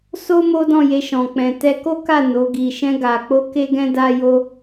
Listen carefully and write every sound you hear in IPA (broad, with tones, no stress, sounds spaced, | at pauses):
s o˦ m o˦ d ɔ̃˦˨ j e˧ ʃ ɔ̃˨ k͡p ɛ̃˨ t ɛ˧ k o˦ k a˦˨ n o˨˦ ɡ i˧ ʃ ɛ̃˧ ɡ a˨ k͡p o˧ k e˦ ɡ ɛ̃˦ d a˦ j o˦